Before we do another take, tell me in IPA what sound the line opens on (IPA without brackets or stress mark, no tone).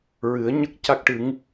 ɹ